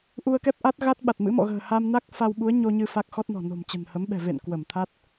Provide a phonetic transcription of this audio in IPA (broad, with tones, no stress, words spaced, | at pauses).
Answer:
ʔu˧ə̯kɛ˦˥p̚ ʔa˦˥t̚ɣa˦˥t̚ɓa˨˩t̚mɨ̰˧˥ mɔ̰˧˨ɣə̤ː˨˩ha˧mna˦˥k̚ fa˧wɓu˨˦ə̯ɲo˧ ɲɨ˧ fa˦˥k̚xɔ˦˥t̚nɔ̤˨˩ no̤˨˩mt͡ɕə̤˨˩nhə˨˦mɓɛ̤˨˩ vḛ˧˨n kwə˧˩mt̪ʰa˦˥t̚